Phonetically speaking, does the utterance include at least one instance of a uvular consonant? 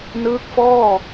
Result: no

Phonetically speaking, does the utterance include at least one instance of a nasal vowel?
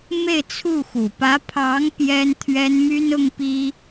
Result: no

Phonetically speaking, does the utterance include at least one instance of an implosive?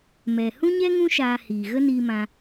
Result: no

